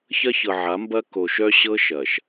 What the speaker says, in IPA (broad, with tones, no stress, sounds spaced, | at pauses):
ç ɐ˦ ç ɤ˨ ʕ a˨˦ m b ɐ˦ k o˨ ʃ œ˦ ɕ ɤ˦ ʃ ɐ˨ ʃ